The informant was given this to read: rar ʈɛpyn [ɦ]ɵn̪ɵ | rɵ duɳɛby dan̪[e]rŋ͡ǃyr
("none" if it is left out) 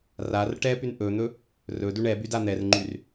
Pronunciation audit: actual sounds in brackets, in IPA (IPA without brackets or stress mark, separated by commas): ʔ, ɛ